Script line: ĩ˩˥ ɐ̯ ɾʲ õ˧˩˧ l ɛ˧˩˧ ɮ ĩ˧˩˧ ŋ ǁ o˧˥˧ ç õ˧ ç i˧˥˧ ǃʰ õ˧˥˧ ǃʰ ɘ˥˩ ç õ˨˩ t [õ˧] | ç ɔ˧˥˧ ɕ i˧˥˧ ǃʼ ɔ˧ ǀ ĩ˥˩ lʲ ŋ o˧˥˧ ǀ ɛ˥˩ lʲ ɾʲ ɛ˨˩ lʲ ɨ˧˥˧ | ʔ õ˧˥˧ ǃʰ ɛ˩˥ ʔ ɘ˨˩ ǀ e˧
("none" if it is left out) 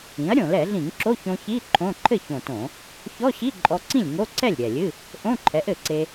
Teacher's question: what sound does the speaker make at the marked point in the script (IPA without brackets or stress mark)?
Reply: õ˧˩˧